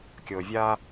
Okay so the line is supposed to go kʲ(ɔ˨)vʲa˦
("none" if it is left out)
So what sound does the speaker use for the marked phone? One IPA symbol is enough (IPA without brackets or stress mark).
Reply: ɤ˨